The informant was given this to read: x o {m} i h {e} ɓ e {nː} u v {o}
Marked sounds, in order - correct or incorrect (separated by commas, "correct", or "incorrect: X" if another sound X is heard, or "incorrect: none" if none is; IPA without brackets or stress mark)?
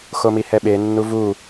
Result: correct, incorrect: ɛ, correct, incorrect: u